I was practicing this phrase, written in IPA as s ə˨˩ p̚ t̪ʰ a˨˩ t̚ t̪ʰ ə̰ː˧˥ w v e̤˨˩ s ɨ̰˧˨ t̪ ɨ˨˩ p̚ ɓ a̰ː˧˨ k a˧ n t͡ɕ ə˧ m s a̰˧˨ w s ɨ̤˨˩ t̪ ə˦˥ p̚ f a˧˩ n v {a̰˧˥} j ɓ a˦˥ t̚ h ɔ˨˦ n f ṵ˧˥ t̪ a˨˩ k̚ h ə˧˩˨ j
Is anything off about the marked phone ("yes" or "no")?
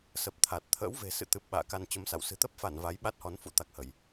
yes